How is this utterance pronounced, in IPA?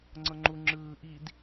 ŋ͡ǀ ɤ ŋ͡ǃ u ŋ͡ǁ ɯː ʔ i d

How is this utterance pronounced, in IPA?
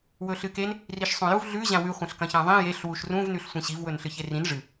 w ɵ ɬ ɨ k e n | r i ʃ sˤ ũ j u v ɮ ʉ ʑ ã w ʉ χʷ ɐ̃ ɬ k ɐ̃ ç ã ðˤ ĩ j e ɬ w u ʃ r ũ v n ʉ ɬ sʷ ĩ ɕ i v w ɵ n ɬ ɨ ç e r ĩ n ʐ ɨ

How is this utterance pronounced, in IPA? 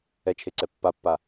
ɛ t͡ʃʰ e ǀ ɛ pː a pː a

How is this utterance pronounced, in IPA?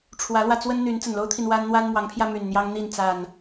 ʈ͡ʂʰ w ä˨˦ l w ä˧ t͡s w ə˦ n n̪ y˨˦ n t͡s ə˨˩ n l o˦ ʊ̯ t̪ʰ i˨ n w a˦ n n̪ w a˦ n m w ɑ˨˦ ŋ pʰ j ä˧ m y˨˩ n n̪ j ɑ˦ ŋ n̪ i˥˨ n t͡s a˨˩ n

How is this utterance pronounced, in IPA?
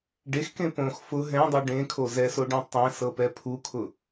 ɖ e x k ẽ p õ x f ʊ ɦ ɛ̃ dˤ u ɖ ẽ kʰ o z ɛ s o ɖ ẽ tˤ ɛ̃ s ɤ p ɛ pʰ u kʰ ʊ

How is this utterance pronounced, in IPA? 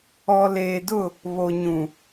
ɔ˨ l eː˨ d ʊ˦˨ | β o˨ ɲ ũ˨

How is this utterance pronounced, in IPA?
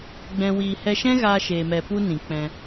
ɡ͡b ɛ̃˧ w i˧ h ɛ˧ ʃ ɛ̃˦ ɣ aː˧ ʃ eː˧ m ɛ˧ p u˦ n ĩ˨ k͡p ɛ̃˧

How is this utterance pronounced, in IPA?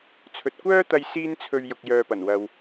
t͡sʰ ɵ˨ t̚ kʷ œː˥ t̪ ɐ˧ j s iː˥ n t͡sʰ ɵ˧ ɥ j ʊ˨ k̚ j œː˨ p ɐ˨˩ n w ɐ˨ w

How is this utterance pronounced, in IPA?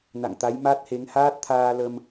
n a̰˧˨ ŋ t̪ a˨˦ j m a˦˥ t̚ h e˨˦ ŋ h aː˦˥ t̚ t̪ʰ aː˧ l ə˧ m

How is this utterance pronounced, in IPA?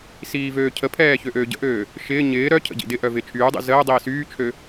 s iː v øː cʰ ə pʰ ɛː ç ø ʔ øː ɟ ə̰ ʔ øː | ʃ ɪː ɲ ɪː ɾ œ cʰ ə̰ ɟ ḭ d ɪ ʔ œ v ɪː t͡ʃʰ yː dˤ ḭ z əː dˤ iː s yː t͡ʃʰ ø

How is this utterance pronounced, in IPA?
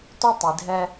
t o˥ tˤ i˨ dʱ ɛ˦

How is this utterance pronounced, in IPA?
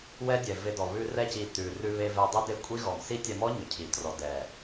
w ɛ˦ dʲ ɛ˨ v e˧ d ɔ˨ β ʉ˧ r ɛ˧ c i˨ t ʉ˨ r ʉ˧ β e˧ v ɛ˧ dˤ e˦ d e˦ kʷʼ i˦ ɣ ɔ˨ m s i˦ tʲ ɛ˧ m ɔ˦ ɲ ʏ˨ cʰ i˨ t r ɔ˨ d ɛ˨

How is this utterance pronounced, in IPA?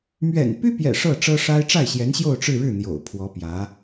m ɥ ɛ̰˨˩ n p y˥ p j ɛ̰˨˩ ʂ ɤ˥˩ ʈ͡ʂ ɤ˥ ʂ a˥ ɪ̯ ʈ͡ʂ a˥˩ ɪ̯ ɕ j ɛ˧˥ n ɕ j o˥˧ ʊ̯ ʈ͡ʂ ɻ̩˥˧ ɻ ɻ̩˥˩ n̪ j o̰˨˩ ʊ̯ pʰ w ɔ˧˥ p j ä˧˥

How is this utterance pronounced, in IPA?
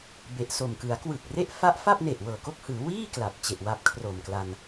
b e˨˩ ʔ s o˨˩ m k ɯ˩˦ a̯ k w ɯ˨˩ k̚ r e˥˩ ʔ f a˦˥ ʔ f a˥˩ p̚ n e˨˩ ʔ w ɤː˨˩ k o˥˩ k̚ h ɯː˩˦ w iː˥˩ k l a˨˩ p̚ t͡ɕ e˨˩ ʔ w a˦˥ p̚ kʰ r o˨˩ m k l a˧ n

